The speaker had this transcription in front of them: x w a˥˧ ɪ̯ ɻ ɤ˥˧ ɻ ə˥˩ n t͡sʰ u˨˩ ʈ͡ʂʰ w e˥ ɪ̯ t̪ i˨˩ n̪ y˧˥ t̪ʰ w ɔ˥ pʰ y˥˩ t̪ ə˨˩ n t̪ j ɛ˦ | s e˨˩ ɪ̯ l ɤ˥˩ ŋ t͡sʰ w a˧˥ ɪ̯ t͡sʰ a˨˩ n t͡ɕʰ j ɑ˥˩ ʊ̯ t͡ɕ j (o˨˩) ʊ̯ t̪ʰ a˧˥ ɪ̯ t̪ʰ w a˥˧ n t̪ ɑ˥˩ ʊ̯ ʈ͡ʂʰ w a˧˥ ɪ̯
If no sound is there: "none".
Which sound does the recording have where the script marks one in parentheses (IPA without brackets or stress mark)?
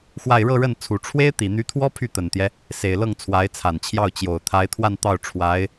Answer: o˨˩